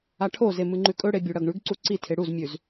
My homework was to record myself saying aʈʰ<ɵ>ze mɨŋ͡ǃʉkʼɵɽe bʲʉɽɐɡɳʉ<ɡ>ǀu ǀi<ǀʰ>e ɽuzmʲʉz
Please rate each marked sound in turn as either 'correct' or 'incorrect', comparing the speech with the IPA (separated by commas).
incorrect, correct, incorrect